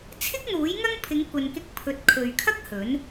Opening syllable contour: high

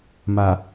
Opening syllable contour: low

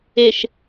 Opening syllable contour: low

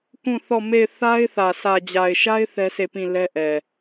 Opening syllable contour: falling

